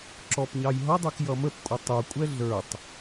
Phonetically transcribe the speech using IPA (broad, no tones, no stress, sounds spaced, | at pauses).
ǁ ɔ p ɲ ɑ j ɦ ʌ dˤ ə˞ k j ʌ m ə p kʷʼ ə tˤ u kʷʼ ɛ ɮ ə˞ tˤ